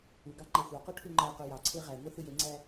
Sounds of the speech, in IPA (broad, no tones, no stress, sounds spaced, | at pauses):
u ɡ ɑ ŋ͡ǃ æ xʷ ɑ q o ʈʰ u ŋ͡ǃ æ q o j ɑ ǀʰ e ʁ æ ŋʷ ɯ θ ɯ j e ŋ͡ǀ æ